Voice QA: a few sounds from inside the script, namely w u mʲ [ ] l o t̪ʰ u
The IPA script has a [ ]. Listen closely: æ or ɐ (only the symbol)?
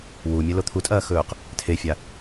ɐ